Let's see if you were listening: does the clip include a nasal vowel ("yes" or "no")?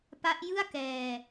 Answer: no